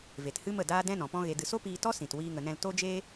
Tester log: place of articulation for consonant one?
labial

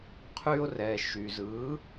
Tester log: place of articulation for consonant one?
uvular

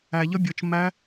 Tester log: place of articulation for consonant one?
palatal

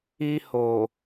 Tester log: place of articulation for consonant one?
glottal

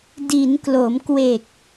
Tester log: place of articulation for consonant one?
alveolar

